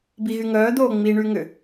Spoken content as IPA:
b i ɣ y ŋ œː d̪ oː ŋ͡m i ɳ y ŋ ʏ

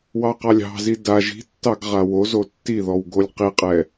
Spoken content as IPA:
w ɑ q ɑ lʲ ɑ̤ z i d a ʒ i̤ tː ɑ ɡ ʁ a w o z o tː i ð ɔ w ɡ o lʲ q i qʼ ɛ

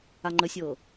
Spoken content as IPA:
a ŋ͡ǃ ə sʲ ɤ

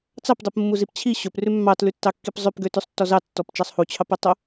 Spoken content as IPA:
t͡s ɑ p dˤ u p mː u z i p t͡ɕʰ i ɕ ɵ p r ʉ mː ɑ t l ʉ tː ɑ kː i p zˤ ø p ɡ ø t ʉ sˤ tː ɔ z ɑ tː ɔ p t͡ʃ ɑ sˤ h u t͡ɕʰ ɑ p ɵ tˤ ɵ

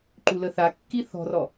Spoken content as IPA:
ǃ u l ə θ a kː i θ ɔ̤ r ɔ

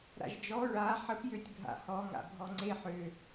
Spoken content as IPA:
ɾ a̰ ʒ d͡ʒ ɔ ɹ a ħ ə p j ø tʲ bʱ a̰ h ɔ ŋ a̰ bʱ ɔ ŋ͡ǀ e ħ ø

